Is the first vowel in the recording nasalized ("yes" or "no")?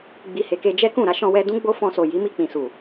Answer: no